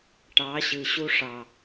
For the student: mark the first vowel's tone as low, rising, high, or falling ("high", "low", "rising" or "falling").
rising